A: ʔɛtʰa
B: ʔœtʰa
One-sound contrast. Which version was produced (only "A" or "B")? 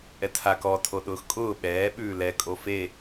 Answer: A